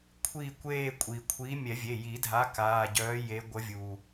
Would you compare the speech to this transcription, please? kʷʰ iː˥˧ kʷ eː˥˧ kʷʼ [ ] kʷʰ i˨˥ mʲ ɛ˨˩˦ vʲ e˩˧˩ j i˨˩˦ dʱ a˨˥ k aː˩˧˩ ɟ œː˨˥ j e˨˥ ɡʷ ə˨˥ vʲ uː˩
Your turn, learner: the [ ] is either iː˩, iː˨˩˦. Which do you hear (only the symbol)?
iː˩